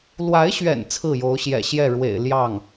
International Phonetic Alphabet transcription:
lwa˧˥ɪ̯ɕɥɛ̰˨˩n t͡sʰɹ̩˥˩jo˧˥ʊ̯ɕjɛ̰˨˩ ɕjɛ˥˩ɻwḛ˨˩ɪ̯ ljɑ˥˩ŋ

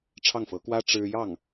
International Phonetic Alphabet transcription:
ʈ͡ʂʰɑ˥˩ŋfɤ˧˥kwä˥ ʈ͡ʂɻ̩˥ jɑ˥˩ŋ

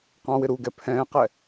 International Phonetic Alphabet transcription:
qɑ̃wɪ ɾuɡɛ pʰɛ̃ːqɛ

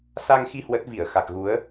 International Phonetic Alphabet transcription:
sa˧ŋxi˧ hwə˦˥t̚ vi˧˩ə̯xa˨˩k̚ɣu˨˦ə̯

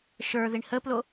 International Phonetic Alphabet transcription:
ʃə˞ ðiɳhəplo

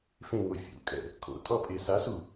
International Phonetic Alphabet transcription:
fẽŋo fʲṵkʼɛ̰ | kʰo̰tʼɔpʼe sasu

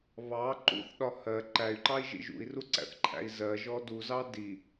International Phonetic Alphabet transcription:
βɑ ǃṵθ ɗɒhɜ ǃæy̯ǃɑi̯ʒḭ ʒṵi̯ruǀæ̰θǃʰæ̰i̯ zɜ ʒɔduzɑ di

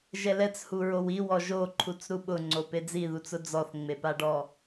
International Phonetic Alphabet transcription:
ʒɛlɛt͡shu ɹowiw ɔʒoǃʰut͡s ɾuɓʊŋ͡ǀo ped͡ziðut͡sʊ d͡zɔθŋ͡mepaɖɔ

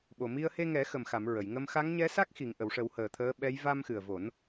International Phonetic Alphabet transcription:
ɓo˨˩mi˧ə̯ he˧ŋɛ˨˩˦xə˨˩mxa˨˩˨m ɹə˨˩˨jŋə˧m xa˧˥ŋɲɛ˧˥sa˦˥k̚ xi˨˩˨ŋʔə˨˩˨wʂə˨˩˦w həː˨˩t̪ʰəː˧˥ɓɛ˧˥j va˧mxɨ˨˩ə̯vo˨˩˦n

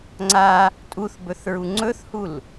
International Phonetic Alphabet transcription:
ŋ͡ǀa | tʼuθbɵθɹu ŋ͡ǀɵθhul

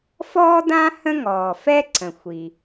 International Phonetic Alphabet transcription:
fɔː˥dã˥ hə̃˥ŋɔː˩ fɛ˥ǀə̃˩ xʷi˩

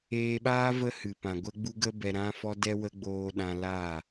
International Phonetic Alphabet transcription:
eː˧ɓaː˦ və˦hɨ˨ pã˨ɡʷə˦ɡ͡bu˦ ɡə˧bɛ˨ ɾã˧ fɔ˦dɛ˦wə˦ɡ͡boː˧ ɗã˧laː˦˨

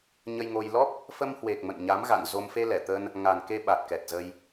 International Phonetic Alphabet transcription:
ɲə˧jŋo˧j lɔ˦˥p̚ | fə˧mhwe˨˩k̚ mə̰˧˨nɲa˨˦mɣa̰˧˨nzo˧m fe˧lɛ˧˩t̪ə˧n | ŋa˨˩n ke˧ɓa˨˩t̚kɛ˨˩t̚ zə˧j

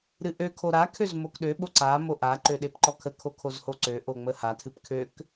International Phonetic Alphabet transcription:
ɾɨʔø kʰoɾa kʰøzmokɗø ɓoǀa moʔa ǃøɗepǃɔkʰə kʰokʰozhoǀø ʔoŋ͡məha tʰɨpkʰøk

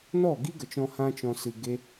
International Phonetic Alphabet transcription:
nɔ˦˨ɡi˦ɡə˨t͡ʃɔ̃˧ hã˦t͡ʃɔ̃˧ sɨ˨ ɡe˦

